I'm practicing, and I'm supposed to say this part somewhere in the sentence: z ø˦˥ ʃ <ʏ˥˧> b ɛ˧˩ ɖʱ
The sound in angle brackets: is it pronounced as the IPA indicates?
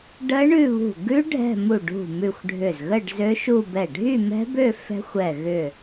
no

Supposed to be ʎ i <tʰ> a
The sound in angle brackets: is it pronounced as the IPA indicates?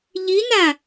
no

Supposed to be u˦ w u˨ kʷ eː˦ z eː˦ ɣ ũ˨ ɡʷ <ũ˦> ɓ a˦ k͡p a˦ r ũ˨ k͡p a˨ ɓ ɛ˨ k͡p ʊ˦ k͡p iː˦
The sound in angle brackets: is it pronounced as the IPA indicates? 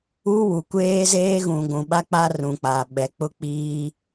no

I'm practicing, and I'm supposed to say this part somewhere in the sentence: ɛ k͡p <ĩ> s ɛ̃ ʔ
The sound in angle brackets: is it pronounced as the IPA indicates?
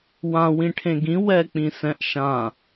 yes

